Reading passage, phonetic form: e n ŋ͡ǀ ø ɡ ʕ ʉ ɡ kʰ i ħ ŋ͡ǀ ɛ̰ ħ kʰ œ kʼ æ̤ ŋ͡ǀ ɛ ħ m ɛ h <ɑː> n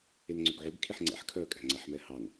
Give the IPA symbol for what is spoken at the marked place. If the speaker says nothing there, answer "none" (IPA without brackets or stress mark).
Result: ɑ